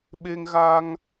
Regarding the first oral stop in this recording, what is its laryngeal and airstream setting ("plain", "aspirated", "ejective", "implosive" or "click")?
implosive